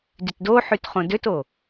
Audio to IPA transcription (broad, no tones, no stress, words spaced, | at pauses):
dytdoħyt χõdøto